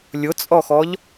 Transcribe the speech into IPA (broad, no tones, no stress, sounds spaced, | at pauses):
lʲ ʊ t͡sʼ ɔ x ɔ ʎ